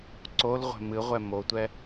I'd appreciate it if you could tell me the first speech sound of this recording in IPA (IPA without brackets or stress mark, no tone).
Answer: ǀ